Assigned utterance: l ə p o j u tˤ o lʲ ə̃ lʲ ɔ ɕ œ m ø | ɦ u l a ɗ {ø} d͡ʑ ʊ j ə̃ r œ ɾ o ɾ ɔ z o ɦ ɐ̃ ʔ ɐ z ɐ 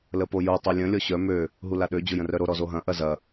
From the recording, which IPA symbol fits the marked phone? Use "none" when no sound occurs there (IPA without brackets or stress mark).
ø